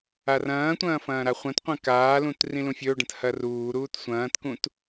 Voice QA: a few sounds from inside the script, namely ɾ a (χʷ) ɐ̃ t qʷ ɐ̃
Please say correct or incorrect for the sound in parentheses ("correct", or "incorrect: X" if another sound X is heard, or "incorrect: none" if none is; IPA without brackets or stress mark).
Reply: correct